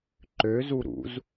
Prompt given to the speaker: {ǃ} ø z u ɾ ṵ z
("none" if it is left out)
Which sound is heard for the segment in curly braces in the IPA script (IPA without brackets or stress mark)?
ǃ